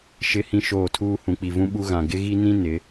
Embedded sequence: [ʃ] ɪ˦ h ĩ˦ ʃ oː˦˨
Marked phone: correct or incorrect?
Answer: correct